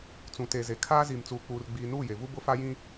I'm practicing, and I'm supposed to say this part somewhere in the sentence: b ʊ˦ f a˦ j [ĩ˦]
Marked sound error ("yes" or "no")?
no